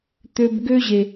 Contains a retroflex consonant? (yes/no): no